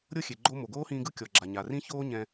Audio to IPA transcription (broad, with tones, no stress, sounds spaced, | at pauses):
ɾʲ ɤ˥ xʲ e˩ ɡ͡ǃ o˥ m o˩ ɡ oː˥ h ĩː˧ ɡ ɯ˥ kʲ ɔ˩ ɡ͡ǁ a˩ ɲ a˩ r ĩ˥ ç oː˥ ɲ ɛ̃˧